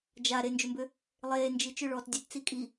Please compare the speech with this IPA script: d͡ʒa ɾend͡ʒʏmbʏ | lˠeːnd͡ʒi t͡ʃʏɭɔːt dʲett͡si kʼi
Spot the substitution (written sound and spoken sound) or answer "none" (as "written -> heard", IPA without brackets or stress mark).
none